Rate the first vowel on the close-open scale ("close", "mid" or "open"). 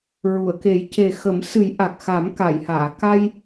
close